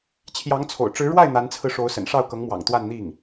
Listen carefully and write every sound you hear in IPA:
t͡ɕʰ j ɑ˧˥ ŋ t͡sʰ o̰˨˩ ʊ̯ ʈ͡ʂ ɻ̩˧˥ ɻ w a˥˩ ɪ̯ n̪ a˧˥ n t͡sʰ ɹ̩˧ ʂ o˧˥ ʊ̯ s ə̰˨˩ n ʂ ɑ˥˩ ʊ̯ k ɤ˧˥ ŋ m w ɑ̰˨˩ ŋ t̪ w a˥˧ n n̪ i˥˩ ŋ

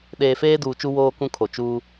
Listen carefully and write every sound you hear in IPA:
ɗ eː˨ f eː˦ d uː˨ t͡ʃ u˦ w oː˦ k ũ˦ kʰ o˨ t͡ʃ uː˦

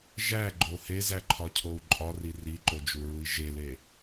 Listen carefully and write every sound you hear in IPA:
ʒ æ ɡ͡ǃ o h e z æ ǃʰ ɒ cʰ o u̯ ǃʼ ɒ r i r i ǃ o d͡ʒ u ɹ u i̯ ʒ e l e

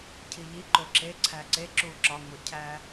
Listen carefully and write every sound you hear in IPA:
cʰ i ʎ i ǃ o ǁ e ǀʰ æ ǀ e ǁ u ǁ ɒ ŋ o cʰ æ

